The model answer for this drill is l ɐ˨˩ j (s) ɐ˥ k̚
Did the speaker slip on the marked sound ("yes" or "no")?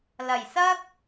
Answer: no